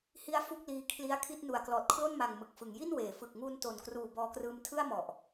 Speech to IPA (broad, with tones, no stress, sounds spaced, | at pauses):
h i˦˥ a̯ f u˥˩ k̚ l iː˦˥ kʰ l i˦˥ a̯ kʰ i˦˥ t̚ n u˨˩ a̯ k l ɔː˨˩ t̚ kʰ l o˥˩ n m a˨˩ ŋ m ɯ˨˩ k̚ f ɯ˩˦ ŋ j i˥˩ n w eː˩˦ f ɯ˨˩ k̚ ŋ uː˧ n t o˨˩ n k r uː˨˩ b ɔː˧ k r ɯː˧ m tʰ ɯ˥˩ a̯ m ɔ˨˩ ʔ